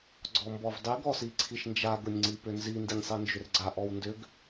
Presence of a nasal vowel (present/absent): absent